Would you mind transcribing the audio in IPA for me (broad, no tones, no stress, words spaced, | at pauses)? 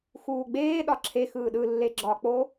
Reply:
xuːɡ͡beː ɗɒǁʰe xɯːɗɯlːe ɡ͡ǁɒk͡po